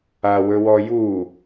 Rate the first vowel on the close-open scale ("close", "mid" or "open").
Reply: open